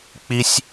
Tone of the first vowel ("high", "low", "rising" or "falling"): high